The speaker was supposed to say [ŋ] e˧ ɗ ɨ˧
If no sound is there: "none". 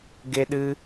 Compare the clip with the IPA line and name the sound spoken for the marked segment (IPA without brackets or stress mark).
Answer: ɡ